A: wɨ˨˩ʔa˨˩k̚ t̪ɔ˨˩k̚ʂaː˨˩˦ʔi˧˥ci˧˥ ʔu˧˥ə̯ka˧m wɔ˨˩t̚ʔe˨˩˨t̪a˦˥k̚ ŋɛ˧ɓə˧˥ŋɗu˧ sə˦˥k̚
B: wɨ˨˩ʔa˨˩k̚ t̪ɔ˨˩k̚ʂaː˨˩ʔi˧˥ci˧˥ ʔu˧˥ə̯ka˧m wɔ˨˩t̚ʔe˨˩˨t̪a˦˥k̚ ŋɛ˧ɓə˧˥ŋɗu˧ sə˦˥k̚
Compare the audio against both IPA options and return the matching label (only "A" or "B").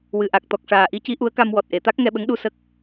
B